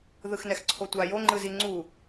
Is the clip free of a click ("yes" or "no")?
no